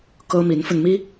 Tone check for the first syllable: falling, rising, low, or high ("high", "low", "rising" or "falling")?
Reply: high